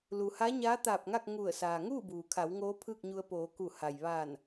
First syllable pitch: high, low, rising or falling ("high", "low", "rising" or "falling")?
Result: low